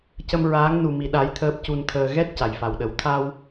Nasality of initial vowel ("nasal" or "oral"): oral